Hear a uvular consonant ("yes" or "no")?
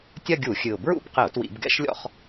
yes